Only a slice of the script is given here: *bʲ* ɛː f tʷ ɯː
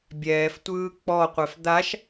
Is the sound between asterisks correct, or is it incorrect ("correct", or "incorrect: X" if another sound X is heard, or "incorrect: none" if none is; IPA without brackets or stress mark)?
correct